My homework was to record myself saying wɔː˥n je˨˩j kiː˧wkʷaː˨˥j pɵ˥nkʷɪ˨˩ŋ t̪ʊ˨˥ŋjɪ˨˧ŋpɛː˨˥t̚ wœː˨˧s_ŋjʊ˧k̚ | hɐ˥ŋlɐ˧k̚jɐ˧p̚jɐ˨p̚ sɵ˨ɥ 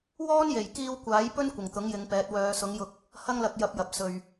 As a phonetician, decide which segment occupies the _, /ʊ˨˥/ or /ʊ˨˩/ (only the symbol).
ʊ˨˥